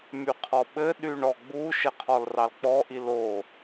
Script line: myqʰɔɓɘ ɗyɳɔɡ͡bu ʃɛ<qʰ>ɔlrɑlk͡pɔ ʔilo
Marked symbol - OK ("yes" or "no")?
yes